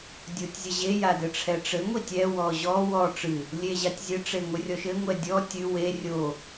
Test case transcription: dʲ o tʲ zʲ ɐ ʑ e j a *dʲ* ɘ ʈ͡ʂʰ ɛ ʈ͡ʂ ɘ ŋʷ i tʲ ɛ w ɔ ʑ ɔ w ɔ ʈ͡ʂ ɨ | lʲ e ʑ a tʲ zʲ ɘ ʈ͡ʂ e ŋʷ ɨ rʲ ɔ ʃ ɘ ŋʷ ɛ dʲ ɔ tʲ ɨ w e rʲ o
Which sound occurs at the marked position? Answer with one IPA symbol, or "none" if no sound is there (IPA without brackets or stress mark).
d